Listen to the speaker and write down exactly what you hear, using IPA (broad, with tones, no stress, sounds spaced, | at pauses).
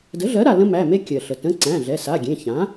d ə˩˥ ɮ ɜ˩˥ ɾ a˩ l ə̃˦ m æ˩˧˩ m e˦ kʲ ɜ˩ ɬ ə˩ t ə̃˩˧˩ ǀ æ̃˩˧˩ ɮ ɛ˩˧˩ s a˩˧˩ ɡʲ ẽ˩˧˩ ç ã˩˥